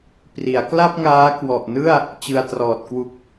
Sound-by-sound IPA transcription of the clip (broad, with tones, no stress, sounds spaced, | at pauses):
p r i˩˦ a̯ k l a˥˩ p̚ ŋ aː˦˥ k w ɔ˨˩ ʔ n ɯ˥˩ a̯ | t͡ɕ ɯ˧ a̯ t r ɔː˨˩ t̚ k w u˨˩ k̚